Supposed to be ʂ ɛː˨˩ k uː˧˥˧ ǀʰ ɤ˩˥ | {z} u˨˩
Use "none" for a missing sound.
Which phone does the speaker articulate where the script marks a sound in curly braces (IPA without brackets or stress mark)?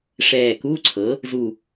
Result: z